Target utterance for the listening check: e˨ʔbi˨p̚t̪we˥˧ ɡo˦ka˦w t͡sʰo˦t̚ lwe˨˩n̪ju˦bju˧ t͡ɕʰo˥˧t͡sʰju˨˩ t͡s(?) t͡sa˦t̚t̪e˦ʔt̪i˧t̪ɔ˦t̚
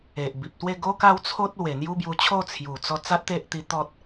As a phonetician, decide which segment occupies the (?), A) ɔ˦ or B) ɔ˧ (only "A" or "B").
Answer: B